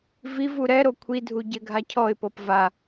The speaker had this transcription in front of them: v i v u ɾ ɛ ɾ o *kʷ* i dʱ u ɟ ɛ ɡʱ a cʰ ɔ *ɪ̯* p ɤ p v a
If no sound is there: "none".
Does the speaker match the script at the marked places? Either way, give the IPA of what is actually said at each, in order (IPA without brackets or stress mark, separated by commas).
kʷʰ, ɪ̯